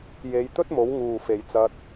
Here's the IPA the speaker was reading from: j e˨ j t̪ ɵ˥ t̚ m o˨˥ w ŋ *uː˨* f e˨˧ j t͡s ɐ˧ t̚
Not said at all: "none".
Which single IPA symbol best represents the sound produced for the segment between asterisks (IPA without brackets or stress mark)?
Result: uː˨